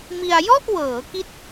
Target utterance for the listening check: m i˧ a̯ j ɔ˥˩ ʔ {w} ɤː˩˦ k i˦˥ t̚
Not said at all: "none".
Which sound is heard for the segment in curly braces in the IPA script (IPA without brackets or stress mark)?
w